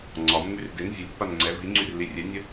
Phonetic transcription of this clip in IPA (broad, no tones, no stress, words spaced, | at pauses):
ŋ͡ǀɒmːyr den vʲəlʲpːan ŋ͡ǀɛ viŋ͡ǀyrli rʲɛnʲə